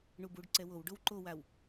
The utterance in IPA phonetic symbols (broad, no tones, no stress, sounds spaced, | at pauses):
ɳ u b u ɖ ǀ ɛ w o w ɖ o w ǃ o w a w